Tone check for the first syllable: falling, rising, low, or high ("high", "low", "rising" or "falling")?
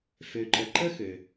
low